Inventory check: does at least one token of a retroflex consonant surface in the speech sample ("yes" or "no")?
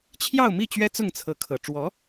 yes